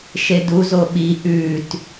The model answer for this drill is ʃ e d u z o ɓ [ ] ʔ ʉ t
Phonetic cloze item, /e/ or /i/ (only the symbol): i